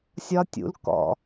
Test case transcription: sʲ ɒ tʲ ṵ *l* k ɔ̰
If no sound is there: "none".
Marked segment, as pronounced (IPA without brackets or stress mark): l